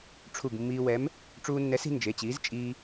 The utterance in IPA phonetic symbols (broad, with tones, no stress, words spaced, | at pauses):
ʈ͡ʂʰu˧˩ɡmːiː˧wɛ˨˥m | ʈ͡ʂuː˧nːɛ˨˥si̤˧ nd͡ʒe˩˧˩t͡ɕiː˨˥z t͡ʃʼiː˧